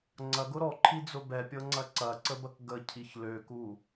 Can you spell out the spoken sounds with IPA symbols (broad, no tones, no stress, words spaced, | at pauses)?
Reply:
ŋ͡ǀɐɡʊ ɾɔǃʰid͡zʊ bɛpʲɤŋ͡ǀɐ ǀɐǀəbɐk ɡəcʰiç løku